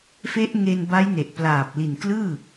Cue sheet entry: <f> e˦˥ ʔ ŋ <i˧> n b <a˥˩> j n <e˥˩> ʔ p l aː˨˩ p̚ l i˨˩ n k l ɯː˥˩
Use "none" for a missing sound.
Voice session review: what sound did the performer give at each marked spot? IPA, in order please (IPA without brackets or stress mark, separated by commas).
f, e˧, a˦˥, e˨˩